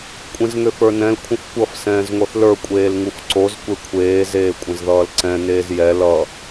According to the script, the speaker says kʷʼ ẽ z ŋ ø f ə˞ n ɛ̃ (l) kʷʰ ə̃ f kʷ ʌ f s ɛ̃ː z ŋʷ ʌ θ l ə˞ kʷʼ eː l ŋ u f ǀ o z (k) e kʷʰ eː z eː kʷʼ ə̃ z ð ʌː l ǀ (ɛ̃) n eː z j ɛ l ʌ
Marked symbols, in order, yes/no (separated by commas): yes, no, yes